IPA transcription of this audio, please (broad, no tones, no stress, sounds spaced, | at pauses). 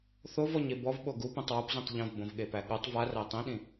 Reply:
θ o v ɔ ɲ e b ɔ v ɓ o ɡ u p ĩ tˤ w o p z ĩ tˤ ʎ õ v b õ v ɠ e p æ ɠ o tˤ v a r æ tˤ ĩ ɗ ĩ